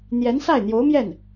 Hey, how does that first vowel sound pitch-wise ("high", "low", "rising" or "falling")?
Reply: rising